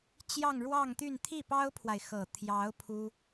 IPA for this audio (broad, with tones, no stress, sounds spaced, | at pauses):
t͡ɕ j ɑ˥˧ ŋ ɻ w ɑ˥˧ ŋ t̪ y˥˧ n t̪ʰ i˥˩ p ɑ˥ ʊ̯ pʰ w a˨ ɪ̯ x ɤ˨˩ t̪ʰ j ɑ˧˥ ʊ̯ pʰ u˥